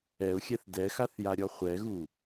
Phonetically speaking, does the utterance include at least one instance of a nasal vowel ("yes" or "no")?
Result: no